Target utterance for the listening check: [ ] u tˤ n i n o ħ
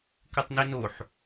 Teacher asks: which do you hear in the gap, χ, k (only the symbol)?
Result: k